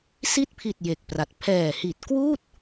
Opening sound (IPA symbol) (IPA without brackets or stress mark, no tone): s